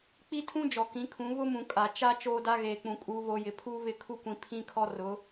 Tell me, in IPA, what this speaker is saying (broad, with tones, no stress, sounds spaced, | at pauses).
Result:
k͡p i˦ tʰ ũ˦ d͡ʒ ɔ˨ k ĩ˨˦ kʰ ũ˨˦ β ʊ˦ m ũ˨ kʼ a˨ t͡ʃ a˦ t͡ʃ oː˦ d a˦ ɣ eː˨ k͡p ũ˨ kʼ uː˨ β o˨ j ɪ˨ pʰ uː˦ β ɪ˦˨ kʰ u˦ kʷ ĩ˨ pʰ ĩ˦ kʰ ɔ˦ r ʊ˨˦